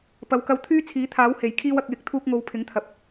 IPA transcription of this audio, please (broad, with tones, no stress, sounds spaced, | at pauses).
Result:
p ɐ˨˧ w k ɐ˧ w t̪ʰ yː˥ t͡sʰ iː˨˥ t̪ʰ aː˨˥ w h e˨˩ j kʰ iː˧ w ɐ˨ k̚ j ɪ˨˥ k̚ t̪ʰ uː˧ k̚ ŋ o˨˧ w pʰ ɪ˨˥ ŋ t̪ʰ ɐ˨ p̚